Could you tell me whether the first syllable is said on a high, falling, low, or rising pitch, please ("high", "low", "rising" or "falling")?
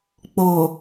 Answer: low